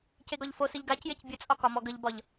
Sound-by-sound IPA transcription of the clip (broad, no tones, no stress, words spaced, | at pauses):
ceɡɒʎfosɨʎ ɡacjec bʲət͡sʼɒ kɒmɔɡəʎbɒʎ